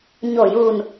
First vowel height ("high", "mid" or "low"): mid